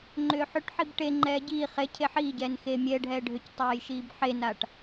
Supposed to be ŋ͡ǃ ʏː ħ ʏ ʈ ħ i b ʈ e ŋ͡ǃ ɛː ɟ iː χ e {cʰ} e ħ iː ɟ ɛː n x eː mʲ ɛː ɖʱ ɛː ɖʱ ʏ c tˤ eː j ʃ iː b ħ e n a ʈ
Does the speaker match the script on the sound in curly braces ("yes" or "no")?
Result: yes